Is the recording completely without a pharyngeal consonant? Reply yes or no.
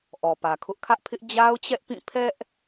yes